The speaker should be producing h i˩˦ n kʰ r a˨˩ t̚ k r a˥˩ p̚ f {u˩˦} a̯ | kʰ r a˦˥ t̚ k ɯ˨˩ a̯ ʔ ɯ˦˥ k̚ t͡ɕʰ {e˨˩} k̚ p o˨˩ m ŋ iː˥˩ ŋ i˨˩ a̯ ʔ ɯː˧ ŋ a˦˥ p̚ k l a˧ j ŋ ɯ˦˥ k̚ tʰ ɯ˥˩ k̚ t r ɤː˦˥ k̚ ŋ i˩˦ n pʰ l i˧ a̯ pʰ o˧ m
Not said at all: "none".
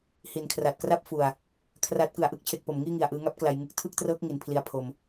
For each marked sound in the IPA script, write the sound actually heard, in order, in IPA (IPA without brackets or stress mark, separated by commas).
u˨˩, e˨˩